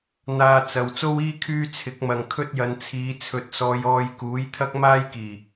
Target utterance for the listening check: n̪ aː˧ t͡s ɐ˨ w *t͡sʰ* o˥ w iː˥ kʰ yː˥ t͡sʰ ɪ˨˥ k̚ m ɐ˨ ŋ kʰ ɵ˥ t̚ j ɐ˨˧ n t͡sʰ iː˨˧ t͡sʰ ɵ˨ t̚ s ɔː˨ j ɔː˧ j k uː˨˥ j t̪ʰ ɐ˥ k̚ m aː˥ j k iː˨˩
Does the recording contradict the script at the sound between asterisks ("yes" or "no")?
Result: yes